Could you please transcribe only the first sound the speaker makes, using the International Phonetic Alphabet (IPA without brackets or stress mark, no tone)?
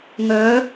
ŋ